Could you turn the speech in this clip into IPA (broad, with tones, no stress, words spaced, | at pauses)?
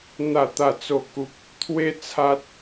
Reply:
n̪a˥˧t̪a˥˧t͡so˥˧ku˦p̚ | t̪ʰwe˦t͡sʰa˦t̚